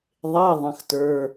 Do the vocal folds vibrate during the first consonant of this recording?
yes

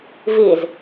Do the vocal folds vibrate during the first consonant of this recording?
yes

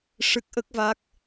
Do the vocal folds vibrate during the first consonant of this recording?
no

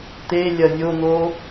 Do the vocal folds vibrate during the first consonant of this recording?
no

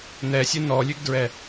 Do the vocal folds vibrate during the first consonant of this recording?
yes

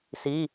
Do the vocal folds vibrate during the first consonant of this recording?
no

